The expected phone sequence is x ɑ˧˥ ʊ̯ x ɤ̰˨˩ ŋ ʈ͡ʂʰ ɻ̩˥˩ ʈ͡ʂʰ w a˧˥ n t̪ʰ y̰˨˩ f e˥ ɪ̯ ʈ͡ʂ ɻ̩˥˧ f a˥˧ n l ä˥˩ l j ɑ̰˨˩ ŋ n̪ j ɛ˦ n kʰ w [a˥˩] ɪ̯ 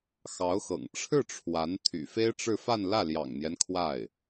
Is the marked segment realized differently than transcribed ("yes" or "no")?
no